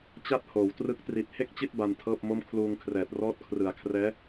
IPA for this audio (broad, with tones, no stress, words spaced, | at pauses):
t͡ɕa˥˩t̚hoː˩˦w trɯ˦˥k̚ tri˨˩t̚he˥˩k̚t͡ɕi˥˩t̚ ba˧ntʰɤː˥˩p̚mo˥˩m kʰluː˧ŋkʰrɛː˨˩t̚ rɔː˦˥t̚kʰrɯ˨˩a̯kʰrɛː˦˥